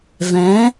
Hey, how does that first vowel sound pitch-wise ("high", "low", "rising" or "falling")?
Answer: rising